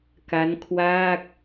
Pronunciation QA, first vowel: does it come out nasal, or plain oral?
oral